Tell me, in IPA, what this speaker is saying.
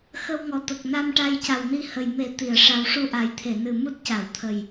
xə˧wŋɔ˨˩t̪ə˨˩k̚ na˧mʈa˧j ca˨˩wni˧hə˨˩j me˨˩˦ t̪i˨˩˨ə̯ʂa˧w ʂu˧ʔa˨˩jt̪ʰe˨˩˨nɨ˨˩ mu˦˥t̚ca˨˩˨wt̪ʰə˨˩j

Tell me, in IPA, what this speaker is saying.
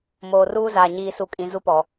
moː˨ruː˦zaː˨ ɲiː˨su˨kʼĩ˨ zu˦pɔ˨

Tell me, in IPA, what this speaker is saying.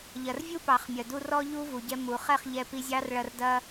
ʎɐ˨rvʲu˦pɑ˨χmʲɐ˨ du˧ rɔ˦ʎu˦vu˨ɟɛ˧ mu˨ χɛ˦˨χʎɛ˧pi˧zʲɑ˦r ɭɐ˧rdɐ˦

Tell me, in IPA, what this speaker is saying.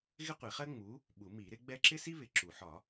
ɣɪ˥qʷi˨˩˦χɜ˥ ŋ͡mu˨˥ | ɓu˨˩˦mi˨˩˦ɾɪ˨˥ɡ͡bɛ˥ ǁɪ˥si˥ βɪ˨˩˦ ǁu˨˩˦ ħɒ˨˩˦

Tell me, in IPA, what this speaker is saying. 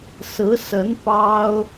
sɹ̩˧˥sə˧˥n pɑ˥ʊ̯

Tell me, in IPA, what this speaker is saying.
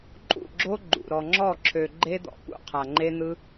ǃʼṵ˦˨ɡ͡ǁo˦ ɡ͡ǃṵ˨ ɾɔ˨ŋ͡ǁɔ˦˨ǁʰø˨ ɡ͡ǃe˦d̪ɔ̰˨pṵ˨ qʰa˨ŋ͡ǃe˦n̪ɯ˦

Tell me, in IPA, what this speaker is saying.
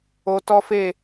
o˧tɔ˦fe˦˨

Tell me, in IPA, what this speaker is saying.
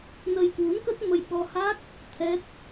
nə˧jkwu˨˦nkə˦˥t̚mə˧j ɓɔ˧ha˦˥k̚ | t̪ʰɛ˦˥t̚

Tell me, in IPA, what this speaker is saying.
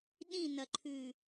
ɗĩnɐǃʰʉ

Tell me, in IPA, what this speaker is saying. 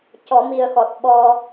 cɔ˨˩˦mi˨˩ə̯xɔ˨˩t̚ ɓɔ˧

